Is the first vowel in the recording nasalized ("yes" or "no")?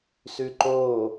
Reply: no